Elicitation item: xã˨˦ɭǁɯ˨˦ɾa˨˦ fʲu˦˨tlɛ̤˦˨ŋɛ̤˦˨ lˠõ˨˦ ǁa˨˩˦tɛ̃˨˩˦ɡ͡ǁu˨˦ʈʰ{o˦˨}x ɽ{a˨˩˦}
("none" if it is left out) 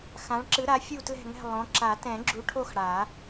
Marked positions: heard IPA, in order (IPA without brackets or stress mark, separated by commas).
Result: o˦˨, a˨˩˦